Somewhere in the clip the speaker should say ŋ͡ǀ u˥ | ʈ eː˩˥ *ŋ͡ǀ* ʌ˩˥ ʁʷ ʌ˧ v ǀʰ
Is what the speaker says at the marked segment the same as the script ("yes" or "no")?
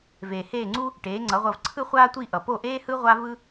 yes